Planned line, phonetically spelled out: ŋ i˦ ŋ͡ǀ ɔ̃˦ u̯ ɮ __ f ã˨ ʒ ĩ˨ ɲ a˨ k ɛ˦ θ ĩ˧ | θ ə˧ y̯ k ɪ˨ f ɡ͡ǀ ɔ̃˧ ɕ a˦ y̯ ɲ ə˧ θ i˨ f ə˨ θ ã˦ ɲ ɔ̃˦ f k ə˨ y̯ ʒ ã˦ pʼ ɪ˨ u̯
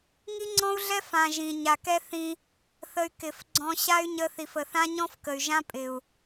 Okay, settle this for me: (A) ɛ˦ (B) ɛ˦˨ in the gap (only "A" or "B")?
A